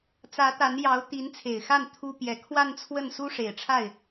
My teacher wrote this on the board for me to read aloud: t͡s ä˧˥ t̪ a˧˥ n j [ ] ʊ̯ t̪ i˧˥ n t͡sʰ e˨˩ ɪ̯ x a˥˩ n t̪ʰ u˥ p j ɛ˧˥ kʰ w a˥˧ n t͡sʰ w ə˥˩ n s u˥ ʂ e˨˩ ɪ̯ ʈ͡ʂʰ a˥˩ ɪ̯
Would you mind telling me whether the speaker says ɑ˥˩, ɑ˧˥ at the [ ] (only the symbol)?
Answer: ɑ˧˥